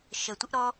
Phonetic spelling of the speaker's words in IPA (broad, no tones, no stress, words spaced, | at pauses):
ʃətʷɪʔ ɾɔ